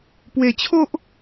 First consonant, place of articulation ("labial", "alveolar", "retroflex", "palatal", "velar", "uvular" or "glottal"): labial